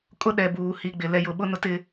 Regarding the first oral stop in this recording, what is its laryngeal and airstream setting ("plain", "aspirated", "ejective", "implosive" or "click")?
ejective